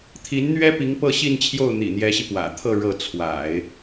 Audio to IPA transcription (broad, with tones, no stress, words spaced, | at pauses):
t̪ʰi˧˥nn̪ɥɛ˥pi˧˥ŋ pɤ˥˧ɕi˥˧nt͡ɕʰjo˥˩ʊ̯ n̪ḭ˨˩n̪jɛ˧˥ɕi˧ pwä̰˨˩t̪ʰɤ˥˧ ɻɤ˥˩ t͡sʰwa̰˨˩˦ɪ̯